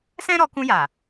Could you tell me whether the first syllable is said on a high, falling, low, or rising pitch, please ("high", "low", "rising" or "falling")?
high